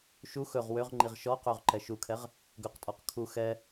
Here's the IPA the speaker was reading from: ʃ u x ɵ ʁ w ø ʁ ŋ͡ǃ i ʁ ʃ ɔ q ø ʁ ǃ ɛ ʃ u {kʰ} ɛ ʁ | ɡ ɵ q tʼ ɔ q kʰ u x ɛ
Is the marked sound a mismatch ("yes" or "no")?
no